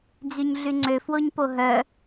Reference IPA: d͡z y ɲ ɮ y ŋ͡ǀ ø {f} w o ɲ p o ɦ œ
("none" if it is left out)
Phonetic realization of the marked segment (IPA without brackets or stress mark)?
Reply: f